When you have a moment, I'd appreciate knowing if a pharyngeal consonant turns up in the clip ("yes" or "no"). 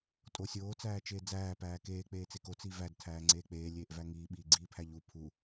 no